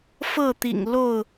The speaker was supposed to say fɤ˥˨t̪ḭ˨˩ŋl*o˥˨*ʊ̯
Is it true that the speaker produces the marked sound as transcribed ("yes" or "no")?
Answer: yes